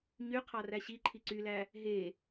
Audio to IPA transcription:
ɲ y qʰ ɑ r æ ɕ i ǃʰ i ǀ y l æ | ɦ e

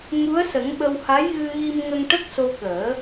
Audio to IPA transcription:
ŋ u˧˥ ə̯ s ə˨˩˦ ŋ ɓ ə˧ w h a˧˥ j ɣ ɨ˧ ɣ i˧ m ŋ ə˧ ŋ ʈ ə˦˥ k̚ s o˧ k əː˨˩˦

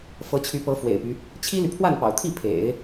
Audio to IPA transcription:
f ɤ˧˥ t͡ɕʰ y˧˥ p ɤ˧˥ f w ḛ˨˩ ɪ̯ p y˦ | t͡ɕʰ i˥ l y˨ pʰ w a˥˩ n p ɑ̰˨˩ ʊ̯ t̪ʰ i˥˩ pʰ ḛ˨˩˦ ɪ̯

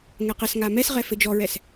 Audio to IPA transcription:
ŋ ɛ q ɘ s ŋ a m ɛ s ʁ ɛ f ɘ d͡ʒ ɔ ɹ ɛ s

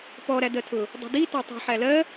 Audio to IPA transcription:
p ɔ ɾ æ d ɜ tʰ ʊ | dˤ ṳ d i t ɔ tˤ ṳ ħ æ l ɜ

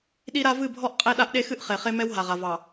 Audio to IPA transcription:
ɗ i˦ ɾ a˦ v ɨ˦˨ bʱ ɔ˦ ʔ qʼ e˦ ɗ a˦ ʔ ɗ e˦ x ɨ˦ ʔ χ e˨ χ e˦ m ɛ˦ w ɦ a˨ ʁ a˨ v ɑ˨

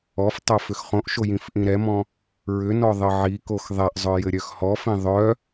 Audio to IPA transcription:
ɔ f tˤ o f ʏ x χ õ ʔ ʃ o j ĩ f ʔ ĩ ɾ ɛ m ɔ̃ | ɹ ʏ n ɔ ðˤ ɘ ʕ i k o x ðˤ ɛ ʔ zˤ œ j ɘ ɾʲ œ x h ɔ f ĩ ðˤ œ

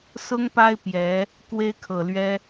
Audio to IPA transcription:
s ʊ˥ ŋ p a˥ ɪ̯ p j ɛ˧˥ | k w e˥ ɪ̯ kʰ ɤ˨˩ l ɥ ɛ˥

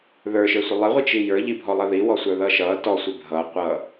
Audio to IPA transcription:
ð ə˞ ʃ ə˞ sʷ ɪ lˠ ɪ ʁʷ i t͡ʃ i j ə˞ ʎ i bʱ ɔ lˠ ʌ ð i w ɔ sʷ ə˞ ð ʌ ʃ ʌ t ɔ sʷ ɪ bʱ ʌ qʷ ʌ

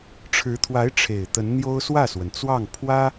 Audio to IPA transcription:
ʈ͡ʂʰ ɻ̩˧˥ t̪ʰ w a˧˥ ɪ̯ ʈ͡ʂʰ e˨˩ ɪ̯ t̪ ə˧˥ n n̪ j o˥ ʊ̯ s w ä˥˩ s w ə˩ n t͡s w ɑ˥˩ ŋ pʰ w ä˥

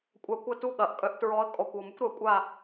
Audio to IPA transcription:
kʷʼ a˧˥ kʷ ɐ˥˨ t u˥˨ ɠ ɐ˩˥ ʔ kʼ œ˧˥ ʔ t ɹ ɔ˧˥ ə̯ kʼ ɔ˨˩ kʷ ɔ˨˩ m ʊ˥ kʷ ɾ œ˩˥ kʷʼ a˥˨

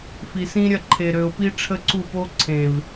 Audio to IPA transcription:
f i˨ s ĩ˦ ɾʲ ɐ˦˨ ǃʰ e˨ ɾ ø˨ ʊ̯ p i˦ ʈ͡ʂʰ ə˦ ǀ u˦˨ p o˦ ǀʰ ẽ˨ v

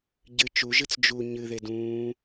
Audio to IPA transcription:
ɟ ɨ t͡ʃ u ʒ ɨ t͡s d͡ʒ u ɲ ɨ ð e d ũː

